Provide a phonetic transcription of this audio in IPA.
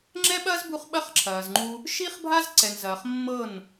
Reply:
ŋ͡ǁ ɛ˦ ɓ ɐː˦ z b u˧ χ ɓ ɐ˦ χ ǁʰ ɐː˨ z ŋ͡ǃ u˧ | ʃ i˦ χ bʱ a˦ z ǀ ɛ˨ n z ɐː˨ χ mː ɤ˦˨ n

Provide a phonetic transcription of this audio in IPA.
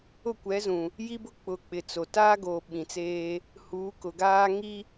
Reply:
ʊ˦˨ kʷ ɛ˨˦ z ũ˨ | j i˦ b ʊ˦ k͡p ʊ˨ k͡p ɪ˨ t͡s o˨ t aː˦ ɡ oː˨ ɓ ĩ˨ t͡s eː˦ | h uː˨˦ k ʊ˨ ɡ aː˦ ŋ i˦

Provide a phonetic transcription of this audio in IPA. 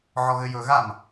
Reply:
ʕ ɔ ɣ ɘ j ɵ ɣ a m

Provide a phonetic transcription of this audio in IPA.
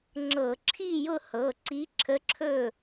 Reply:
ŋ͡ǁ ɤ˧˩˧ ǁʰ i˥˨ j ʊ˥˨ h ɤ˩˧˩ ǀ i˧˥ ǁʰ ə˧˥ ǁʰ ɵ˥˨

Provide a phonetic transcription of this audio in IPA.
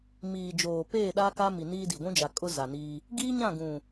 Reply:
m iː˨ d͡ʒ oː˨ p eː˦˨ ɗ aː˦ k a˦ m i˨ n iː˦ d i˨ ɡʷ ũ˦ d͡ʒ a˨ kʼ ʊ˦ z a˨ n iː˦ | ɡ iː˦ ɲ ã˦˨ ɡ ũ˨

